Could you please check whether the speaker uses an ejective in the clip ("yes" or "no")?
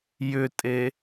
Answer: yes